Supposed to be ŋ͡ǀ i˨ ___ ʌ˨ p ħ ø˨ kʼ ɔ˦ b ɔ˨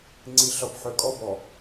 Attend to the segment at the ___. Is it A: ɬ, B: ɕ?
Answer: A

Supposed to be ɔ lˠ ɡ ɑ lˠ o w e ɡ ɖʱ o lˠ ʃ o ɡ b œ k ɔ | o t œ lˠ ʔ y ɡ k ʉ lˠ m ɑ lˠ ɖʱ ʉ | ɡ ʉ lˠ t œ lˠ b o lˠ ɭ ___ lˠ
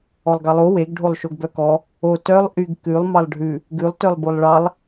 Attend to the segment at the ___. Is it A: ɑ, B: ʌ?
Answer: A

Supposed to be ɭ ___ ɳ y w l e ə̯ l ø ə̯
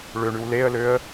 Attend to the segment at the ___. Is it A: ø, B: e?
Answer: A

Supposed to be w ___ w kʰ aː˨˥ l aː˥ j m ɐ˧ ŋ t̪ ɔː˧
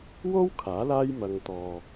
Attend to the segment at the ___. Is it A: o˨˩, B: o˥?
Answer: B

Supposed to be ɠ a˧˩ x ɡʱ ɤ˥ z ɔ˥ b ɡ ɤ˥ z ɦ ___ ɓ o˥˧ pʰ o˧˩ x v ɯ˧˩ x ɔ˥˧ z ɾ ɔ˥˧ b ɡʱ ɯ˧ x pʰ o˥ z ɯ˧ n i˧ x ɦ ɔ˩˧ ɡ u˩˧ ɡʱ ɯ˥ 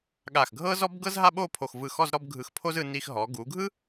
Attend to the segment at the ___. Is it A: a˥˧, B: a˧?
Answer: A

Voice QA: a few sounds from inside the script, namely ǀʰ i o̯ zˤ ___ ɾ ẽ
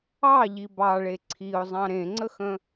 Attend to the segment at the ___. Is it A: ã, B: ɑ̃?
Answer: B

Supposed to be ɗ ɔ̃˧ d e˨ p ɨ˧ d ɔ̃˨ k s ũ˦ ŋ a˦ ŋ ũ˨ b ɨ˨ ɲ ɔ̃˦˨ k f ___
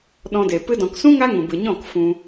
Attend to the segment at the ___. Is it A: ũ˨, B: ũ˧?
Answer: B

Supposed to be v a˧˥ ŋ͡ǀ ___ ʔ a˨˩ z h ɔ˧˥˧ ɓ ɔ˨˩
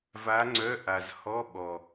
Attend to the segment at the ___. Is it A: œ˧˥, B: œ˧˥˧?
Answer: B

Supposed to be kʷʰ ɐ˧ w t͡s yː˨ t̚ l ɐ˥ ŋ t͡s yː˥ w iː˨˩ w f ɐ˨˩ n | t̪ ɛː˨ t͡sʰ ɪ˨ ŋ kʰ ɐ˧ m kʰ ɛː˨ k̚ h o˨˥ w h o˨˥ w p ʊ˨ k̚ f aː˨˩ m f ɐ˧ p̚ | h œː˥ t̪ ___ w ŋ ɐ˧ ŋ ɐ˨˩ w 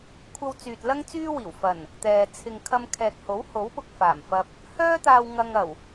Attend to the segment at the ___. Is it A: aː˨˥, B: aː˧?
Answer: B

